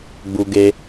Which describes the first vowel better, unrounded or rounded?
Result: rounded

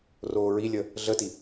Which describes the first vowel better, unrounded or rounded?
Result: rounded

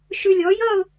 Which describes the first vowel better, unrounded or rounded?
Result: rounded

